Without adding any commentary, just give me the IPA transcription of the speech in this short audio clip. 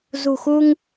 z ṳ˨˩ x u˧ ŋ

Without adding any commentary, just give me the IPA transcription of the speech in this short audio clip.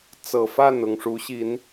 t͡s ɤ˨˩ f a˥˨ n ʊ˨˩ ŋ ʂ u˨˦ ɕ i˨˦ n

